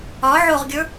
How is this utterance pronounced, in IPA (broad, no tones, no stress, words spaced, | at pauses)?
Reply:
ɒ ʕoʁɡʲə˞